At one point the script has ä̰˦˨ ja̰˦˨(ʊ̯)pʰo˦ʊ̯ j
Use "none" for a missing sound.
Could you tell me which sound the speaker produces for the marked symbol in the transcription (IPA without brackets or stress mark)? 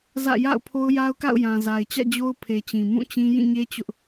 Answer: ʊ̯